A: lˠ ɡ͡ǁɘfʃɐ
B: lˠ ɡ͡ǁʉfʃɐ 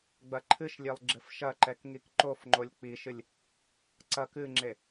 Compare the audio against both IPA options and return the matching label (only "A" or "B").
A